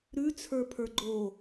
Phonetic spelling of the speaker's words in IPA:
ɾ ʉ t͡sʰ ə˞ pʰ ə˞ ɡ͡ǃ o

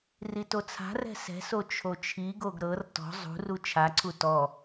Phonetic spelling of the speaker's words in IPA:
r i t o t͡sʰ a̤ r ɛ̤ s ɛ̤ s o t͡ʃʰ o t͡ʃʰ i ɡ o ɡ ɾ ɤ r t ɔ̤ zˤ ṳ r u t͡ʃʰ a ǀʰ u t ɔ

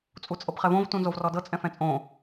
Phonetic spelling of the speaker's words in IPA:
t͡sʼ u t͡sʼ ɤ b χ ɛ v õ v t ũ n z o v r ɔ d ɤ t͡sʼ ɛ̃ f ɛ̃ t͡sʼ õ

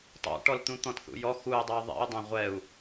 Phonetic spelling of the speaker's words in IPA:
tˤ o̰ ʈ ɔ l t̪ ũ t̪ ɔ̃ t θ ṵ j ɔ x u j dˤ ɛ u̯ ðˤ ḭ u̯ dˤ ɐ̃ ʁʷ ɛ u̯

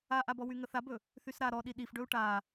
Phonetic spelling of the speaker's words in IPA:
a ʔ a b ɔ w y ŋ ə θ a b ɵ | θ y s ɾ a ɾ ɔ ɗ i ɗ i f ɖ ɵ u̯ ʈ a

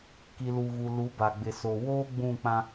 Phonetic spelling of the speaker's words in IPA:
k i˨ l u˨ ɣ u˨ l u˨˦ b a˨ ɡ͡b ɪ˨ s o˨ w oː˦ ɡ͡b ũ˦˨ k͡p ã˦

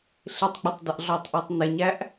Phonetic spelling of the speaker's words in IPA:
ɬ ɪ tˤ ɡ͡b ʌ tˤ d ʌ ʔ ɮ ɔ tˤ ʔ ə˞ tˤ n ɪ ɲ æ ʔ

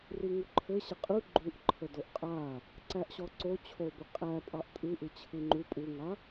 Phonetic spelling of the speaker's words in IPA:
r i ŋ u ǃʰ ɘ ɕ ə qʼ ɯ ɡ͡ǃ u ʔ ǃʰ ə d o ʔ qʼ a | ǀ æ ʔ ɕ ɔ ǀ o t͡ɕʰ o b ə qʼ æ pʼ ɑ ʔ tʼ ɯ ʔ ɯ t͡ɕʰ ɯ ŋ͡ǃ u pʼ u ŋ a

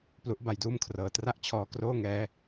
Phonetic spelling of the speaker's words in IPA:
p l u˦˥ ʔ b a˧ j d uː˥˩ m kʰ r ɤː˨˩ t r a˥˩ ʔ t͡ɕʰ ɔː˧ k r oː˥˩ ŋ ɛː˦˥

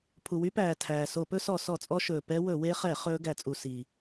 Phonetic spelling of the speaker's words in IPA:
pʰ u˩ w y˦˥ p æː˩ tʰ æː˩ s o˧˩˧ p ɵ˦˥ s ɔ˧˩˧ s ɔ˧˩˧ t͡sʼ ɔ˦˥ ʃ ɵː˩ p ɛ˦˥ w ɵ˧˩˧ w e˦˥ χ ɛ˧˩˧ χ ɵː˦˥ ɡ æ˧˩˧ t͡sʼ u˧˩˧ s iː˩

